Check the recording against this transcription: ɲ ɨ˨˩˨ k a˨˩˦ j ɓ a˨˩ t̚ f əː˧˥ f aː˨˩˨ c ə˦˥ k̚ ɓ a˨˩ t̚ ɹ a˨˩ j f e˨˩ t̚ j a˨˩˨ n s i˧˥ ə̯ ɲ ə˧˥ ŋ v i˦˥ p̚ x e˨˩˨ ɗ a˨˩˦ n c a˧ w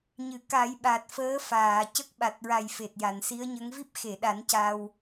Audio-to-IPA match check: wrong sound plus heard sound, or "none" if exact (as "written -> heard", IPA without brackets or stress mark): none